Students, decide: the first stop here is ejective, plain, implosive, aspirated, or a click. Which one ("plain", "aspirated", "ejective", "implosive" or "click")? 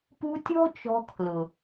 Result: plain